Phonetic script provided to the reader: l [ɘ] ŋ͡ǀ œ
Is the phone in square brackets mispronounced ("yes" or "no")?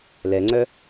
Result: yes